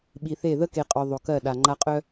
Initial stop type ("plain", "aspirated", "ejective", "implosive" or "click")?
implosive